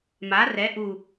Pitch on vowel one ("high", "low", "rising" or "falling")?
rising